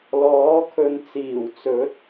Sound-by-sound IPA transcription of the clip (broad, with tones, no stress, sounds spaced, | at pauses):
l ɔː˨˥ kʰ ɵ˧ n t͡s iː˨˩ w t͡s ɵ˨˥ t̚